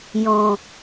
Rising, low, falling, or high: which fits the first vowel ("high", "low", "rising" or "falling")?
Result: low